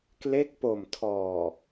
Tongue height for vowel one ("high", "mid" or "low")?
mid